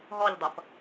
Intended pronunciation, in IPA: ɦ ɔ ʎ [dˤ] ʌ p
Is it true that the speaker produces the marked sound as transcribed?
yes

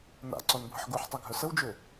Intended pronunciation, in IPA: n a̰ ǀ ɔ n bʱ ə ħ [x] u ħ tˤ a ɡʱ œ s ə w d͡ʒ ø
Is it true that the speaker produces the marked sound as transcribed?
no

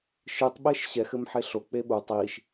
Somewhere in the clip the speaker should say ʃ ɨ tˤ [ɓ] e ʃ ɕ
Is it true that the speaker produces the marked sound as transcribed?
yes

